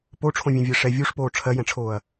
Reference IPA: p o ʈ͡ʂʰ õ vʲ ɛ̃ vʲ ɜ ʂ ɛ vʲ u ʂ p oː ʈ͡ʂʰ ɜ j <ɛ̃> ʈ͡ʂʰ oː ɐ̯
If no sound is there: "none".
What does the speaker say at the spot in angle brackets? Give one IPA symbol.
ɛ̃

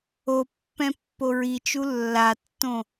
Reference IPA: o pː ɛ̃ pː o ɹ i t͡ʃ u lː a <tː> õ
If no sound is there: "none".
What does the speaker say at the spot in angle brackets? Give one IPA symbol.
tː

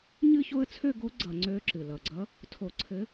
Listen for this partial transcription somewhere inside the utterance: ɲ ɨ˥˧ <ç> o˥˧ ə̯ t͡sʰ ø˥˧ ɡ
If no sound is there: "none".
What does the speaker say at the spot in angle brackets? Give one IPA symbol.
ç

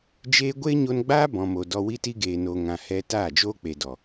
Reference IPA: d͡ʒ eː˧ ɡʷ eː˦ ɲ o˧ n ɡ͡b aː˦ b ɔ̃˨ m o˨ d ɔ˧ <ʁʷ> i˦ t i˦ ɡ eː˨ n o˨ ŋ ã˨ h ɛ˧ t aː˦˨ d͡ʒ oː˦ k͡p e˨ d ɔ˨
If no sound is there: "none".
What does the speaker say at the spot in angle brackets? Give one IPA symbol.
w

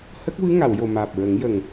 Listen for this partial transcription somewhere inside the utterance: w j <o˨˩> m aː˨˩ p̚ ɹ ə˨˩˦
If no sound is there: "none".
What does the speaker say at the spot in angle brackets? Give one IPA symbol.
o˨˩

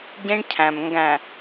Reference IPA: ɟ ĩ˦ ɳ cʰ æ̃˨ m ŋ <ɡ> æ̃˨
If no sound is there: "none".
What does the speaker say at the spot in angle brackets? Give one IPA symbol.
ɡ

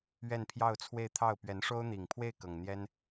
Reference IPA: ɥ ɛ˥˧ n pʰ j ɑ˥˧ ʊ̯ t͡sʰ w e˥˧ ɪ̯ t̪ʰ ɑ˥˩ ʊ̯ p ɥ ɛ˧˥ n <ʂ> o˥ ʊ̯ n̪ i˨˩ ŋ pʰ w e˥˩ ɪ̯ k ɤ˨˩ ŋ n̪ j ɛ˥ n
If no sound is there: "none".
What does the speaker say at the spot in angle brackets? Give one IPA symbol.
ʂ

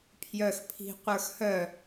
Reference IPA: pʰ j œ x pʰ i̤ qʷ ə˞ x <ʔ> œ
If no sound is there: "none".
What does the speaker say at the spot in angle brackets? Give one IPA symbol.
h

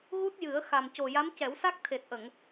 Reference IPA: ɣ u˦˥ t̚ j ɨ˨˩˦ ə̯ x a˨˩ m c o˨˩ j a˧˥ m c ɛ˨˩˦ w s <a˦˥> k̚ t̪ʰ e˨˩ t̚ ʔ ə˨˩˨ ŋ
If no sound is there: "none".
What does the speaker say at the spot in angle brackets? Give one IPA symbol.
a˦˥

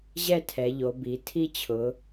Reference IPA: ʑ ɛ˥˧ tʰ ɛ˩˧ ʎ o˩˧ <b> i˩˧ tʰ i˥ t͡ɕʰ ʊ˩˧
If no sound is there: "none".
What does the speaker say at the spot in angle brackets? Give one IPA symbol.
b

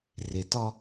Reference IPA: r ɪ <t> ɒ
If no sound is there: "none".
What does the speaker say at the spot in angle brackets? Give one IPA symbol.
t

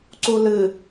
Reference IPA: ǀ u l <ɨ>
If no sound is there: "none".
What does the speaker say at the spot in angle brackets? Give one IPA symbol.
ɨ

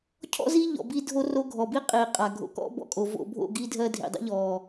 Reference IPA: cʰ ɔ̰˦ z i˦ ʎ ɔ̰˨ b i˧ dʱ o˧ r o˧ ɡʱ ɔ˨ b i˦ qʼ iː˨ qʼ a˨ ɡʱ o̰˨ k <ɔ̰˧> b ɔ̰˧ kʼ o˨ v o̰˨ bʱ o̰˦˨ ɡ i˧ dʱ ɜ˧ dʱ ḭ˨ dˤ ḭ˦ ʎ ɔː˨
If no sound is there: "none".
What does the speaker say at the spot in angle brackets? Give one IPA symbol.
ɔ̰˦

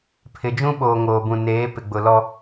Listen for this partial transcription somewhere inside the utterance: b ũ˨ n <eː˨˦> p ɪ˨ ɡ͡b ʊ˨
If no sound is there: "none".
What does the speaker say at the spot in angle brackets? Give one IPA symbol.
eː˨˦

